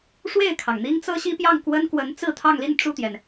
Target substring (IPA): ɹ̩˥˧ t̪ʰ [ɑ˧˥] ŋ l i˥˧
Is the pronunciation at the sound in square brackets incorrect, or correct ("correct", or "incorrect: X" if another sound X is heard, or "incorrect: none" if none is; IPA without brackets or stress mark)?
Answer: incorrect: ɑ˥˧